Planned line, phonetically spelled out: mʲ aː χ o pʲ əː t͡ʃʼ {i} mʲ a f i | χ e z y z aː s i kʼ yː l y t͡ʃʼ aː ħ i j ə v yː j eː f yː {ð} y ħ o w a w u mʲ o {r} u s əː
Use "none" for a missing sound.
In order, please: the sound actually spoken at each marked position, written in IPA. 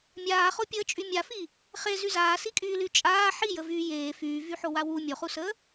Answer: y, v, χ

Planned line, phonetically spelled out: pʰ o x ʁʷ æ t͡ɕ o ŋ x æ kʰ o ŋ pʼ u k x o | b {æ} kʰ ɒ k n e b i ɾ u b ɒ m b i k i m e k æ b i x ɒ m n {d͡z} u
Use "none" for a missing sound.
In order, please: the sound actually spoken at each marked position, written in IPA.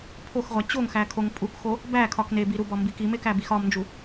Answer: æ, d͡ʒ

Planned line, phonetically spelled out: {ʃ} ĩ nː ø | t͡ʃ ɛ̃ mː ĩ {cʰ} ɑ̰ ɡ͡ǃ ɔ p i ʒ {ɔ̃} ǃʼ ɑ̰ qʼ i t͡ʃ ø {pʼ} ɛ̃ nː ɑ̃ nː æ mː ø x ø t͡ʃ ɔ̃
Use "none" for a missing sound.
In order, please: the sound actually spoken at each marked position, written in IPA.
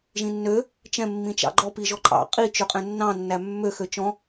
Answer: ʒ, t͡ʃ, ɔ, qʼ

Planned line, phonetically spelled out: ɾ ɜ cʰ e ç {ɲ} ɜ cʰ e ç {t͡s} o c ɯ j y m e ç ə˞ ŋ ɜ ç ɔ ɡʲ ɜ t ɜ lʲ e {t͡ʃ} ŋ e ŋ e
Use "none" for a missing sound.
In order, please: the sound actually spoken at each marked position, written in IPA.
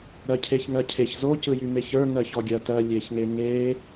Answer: ŋ, z, ç

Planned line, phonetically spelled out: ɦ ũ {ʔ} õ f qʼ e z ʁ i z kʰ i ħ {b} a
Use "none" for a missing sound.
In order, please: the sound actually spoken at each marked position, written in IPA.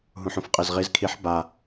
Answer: ħ, b

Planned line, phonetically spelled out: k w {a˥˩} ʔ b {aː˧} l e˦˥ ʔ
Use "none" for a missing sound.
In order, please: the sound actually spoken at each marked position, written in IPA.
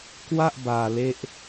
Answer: a˥˩, aː˧

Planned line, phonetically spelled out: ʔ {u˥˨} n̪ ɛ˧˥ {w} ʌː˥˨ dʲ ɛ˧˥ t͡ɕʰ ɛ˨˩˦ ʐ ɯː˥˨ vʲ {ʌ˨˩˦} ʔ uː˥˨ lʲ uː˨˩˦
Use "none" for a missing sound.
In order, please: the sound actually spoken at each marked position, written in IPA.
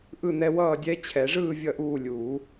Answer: ɯ˥˨, w, ʌ˥˨

